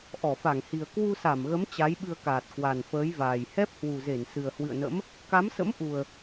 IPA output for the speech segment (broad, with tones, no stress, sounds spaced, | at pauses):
ʔ ɔ˧˩ f a˧˩ ŋ h i˨˩ ə̯ k w u˧ s a˧˩ m ɣ ə˨˦ m t͡ɕ a˨˦ j ɓ ɨ˧ ə̯ k aː˨˩ t̚ k w a˨˩ n f əː˨˦ j v aː˨˩ j h ɛ˦˥ p̚ h w u˨˩ z e˧˩ n s ɨ˨˩ ə̯ h w ɨ̰˧˨ ə̯ n ə̰˧˥ m | k a˨˦ m s ə̰˧˥ m ʔ u˨˩ ə̯